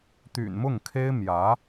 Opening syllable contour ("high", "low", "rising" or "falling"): low